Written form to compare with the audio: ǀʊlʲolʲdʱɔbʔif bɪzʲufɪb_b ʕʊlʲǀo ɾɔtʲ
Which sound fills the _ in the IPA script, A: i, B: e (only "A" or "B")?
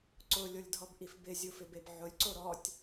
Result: B